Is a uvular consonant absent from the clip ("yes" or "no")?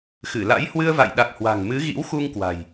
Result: yes